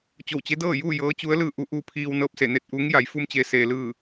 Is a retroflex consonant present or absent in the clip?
absent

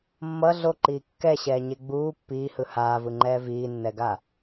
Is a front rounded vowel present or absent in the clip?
absent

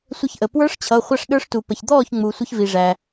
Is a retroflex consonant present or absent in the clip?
present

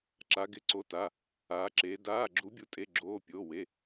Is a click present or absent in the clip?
present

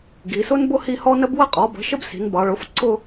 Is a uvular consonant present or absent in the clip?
present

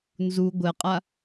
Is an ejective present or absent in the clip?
present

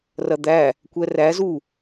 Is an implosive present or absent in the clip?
absent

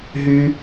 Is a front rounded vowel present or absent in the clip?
present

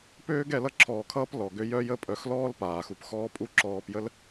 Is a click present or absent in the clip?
present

